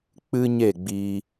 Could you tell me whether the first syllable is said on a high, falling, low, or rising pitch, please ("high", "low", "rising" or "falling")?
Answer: high